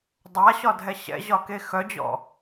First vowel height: low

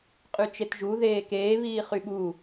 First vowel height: high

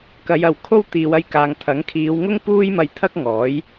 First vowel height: low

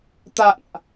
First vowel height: low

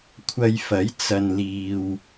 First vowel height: low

